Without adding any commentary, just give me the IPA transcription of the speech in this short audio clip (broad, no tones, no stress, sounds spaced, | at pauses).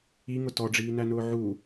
i ŋ ʊ t ɔ ɖ͡ʐ iː n æ n ʊː ʕ u